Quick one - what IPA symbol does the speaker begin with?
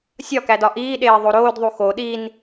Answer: sʲ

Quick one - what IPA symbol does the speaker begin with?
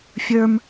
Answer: fʲ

